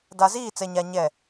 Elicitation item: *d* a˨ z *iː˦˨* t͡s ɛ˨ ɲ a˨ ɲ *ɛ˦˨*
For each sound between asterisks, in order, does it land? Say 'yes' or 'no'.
yes, yes, yes

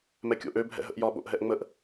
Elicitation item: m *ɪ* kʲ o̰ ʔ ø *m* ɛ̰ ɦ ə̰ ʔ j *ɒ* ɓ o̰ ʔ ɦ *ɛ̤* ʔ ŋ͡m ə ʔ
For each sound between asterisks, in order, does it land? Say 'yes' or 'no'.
no, no, yes, no

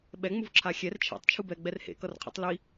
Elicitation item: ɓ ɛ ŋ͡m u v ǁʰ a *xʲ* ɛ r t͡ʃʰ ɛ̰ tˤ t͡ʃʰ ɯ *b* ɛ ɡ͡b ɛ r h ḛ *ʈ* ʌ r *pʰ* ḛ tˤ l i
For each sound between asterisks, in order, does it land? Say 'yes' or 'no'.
yes, yes, no, no

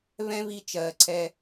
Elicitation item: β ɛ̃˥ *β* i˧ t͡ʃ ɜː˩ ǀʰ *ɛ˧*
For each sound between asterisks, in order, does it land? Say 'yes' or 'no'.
yes, yes

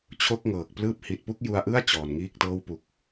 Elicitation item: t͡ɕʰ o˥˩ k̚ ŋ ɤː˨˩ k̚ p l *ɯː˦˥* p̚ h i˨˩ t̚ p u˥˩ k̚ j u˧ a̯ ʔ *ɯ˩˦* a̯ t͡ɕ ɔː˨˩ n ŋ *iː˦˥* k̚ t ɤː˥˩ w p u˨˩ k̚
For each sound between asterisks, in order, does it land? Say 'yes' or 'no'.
yes, no, no

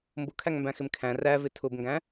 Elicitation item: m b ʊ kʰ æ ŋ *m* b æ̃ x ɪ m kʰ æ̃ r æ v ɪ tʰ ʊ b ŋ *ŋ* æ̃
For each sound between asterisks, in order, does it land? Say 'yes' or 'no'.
yes, no

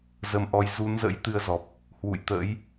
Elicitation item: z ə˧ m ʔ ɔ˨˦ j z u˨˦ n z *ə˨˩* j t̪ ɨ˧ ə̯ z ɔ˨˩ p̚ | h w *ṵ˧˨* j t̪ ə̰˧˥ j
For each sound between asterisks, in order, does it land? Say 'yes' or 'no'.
no, yes

